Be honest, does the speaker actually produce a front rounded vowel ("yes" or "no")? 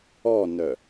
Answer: yes